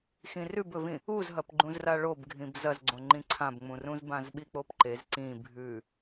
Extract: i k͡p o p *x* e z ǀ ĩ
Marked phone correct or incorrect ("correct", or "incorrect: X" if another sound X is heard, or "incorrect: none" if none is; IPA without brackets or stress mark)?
incorrect: ǃ